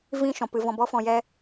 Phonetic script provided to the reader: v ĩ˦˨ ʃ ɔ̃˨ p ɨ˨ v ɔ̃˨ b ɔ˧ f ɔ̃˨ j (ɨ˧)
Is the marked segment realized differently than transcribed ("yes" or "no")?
yes